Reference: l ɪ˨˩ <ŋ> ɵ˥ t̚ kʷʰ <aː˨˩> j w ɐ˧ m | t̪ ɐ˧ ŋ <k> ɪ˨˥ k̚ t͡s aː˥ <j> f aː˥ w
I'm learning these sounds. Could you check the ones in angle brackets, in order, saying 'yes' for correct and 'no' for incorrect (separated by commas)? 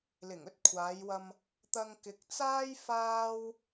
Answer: yes, no, yes, yes